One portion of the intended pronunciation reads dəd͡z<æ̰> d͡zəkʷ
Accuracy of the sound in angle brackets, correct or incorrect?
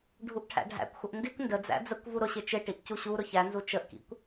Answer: correct